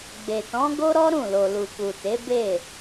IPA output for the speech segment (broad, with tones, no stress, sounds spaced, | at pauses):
ɡ͡b e˨ t ɔ̃˨˦ ɡ o˦ ɾ ɔ˦ ɾ ũ˦˨ l o˨ l u˨ k u˨ t e˨˦ b e˦˨